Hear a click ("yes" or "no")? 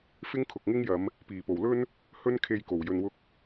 no